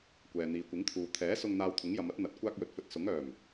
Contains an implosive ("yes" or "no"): no